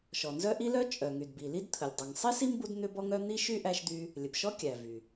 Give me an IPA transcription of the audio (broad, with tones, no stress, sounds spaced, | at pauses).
ʃ ɔ˩ n z œ˥ ʔ i˥ l œ˥ t͡ʃʼ œ˩ ŋ y˩ d b i˩ l i˥ d t̪ʰ ə˩ lʲ dˤ u˩ ŋ sˤ i˥ s i˥ m b u˥ d n̪ ʏ˥ b ɔ˥ ŋ œ˥ n̪ i˥ ʃ y˥ ʔ æ˥ ʃ d̪ y˥ | lʲ ə˩ b ʃ ɔ˥ kʲ æ˩ v y˩